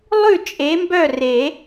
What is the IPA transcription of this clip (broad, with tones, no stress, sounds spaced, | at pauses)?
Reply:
lˠ ʉ˥˨ t͡ʃʼ e˨˥ m b œ˥˨ r e˨˩˦